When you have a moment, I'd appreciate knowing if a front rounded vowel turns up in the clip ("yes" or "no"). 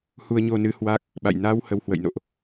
no